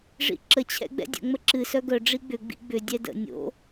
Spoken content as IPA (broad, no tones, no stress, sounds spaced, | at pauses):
ʐ ḭ ǁ ə t͡ɕʰ ɛ̰ ɡ͡b ɛ̰ dʲ ə̰ ŋ͡m ə ǁ ɨ s œ ɡ œ ɖ͡ʐ i ɡ͡b ʏ ɡ͡b ḭ ɡ͡b ʏ dʲ ɛ d ə̰ nʲ o̰